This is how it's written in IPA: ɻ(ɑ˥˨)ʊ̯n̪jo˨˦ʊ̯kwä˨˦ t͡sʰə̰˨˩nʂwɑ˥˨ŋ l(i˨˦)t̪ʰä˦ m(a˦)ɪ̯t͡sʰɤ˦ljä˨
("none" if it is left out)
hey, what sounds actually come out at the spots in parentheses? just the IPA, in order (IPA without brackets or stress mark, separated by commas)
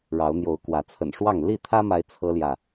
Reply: ɑ˨˦, i˥˨, a˦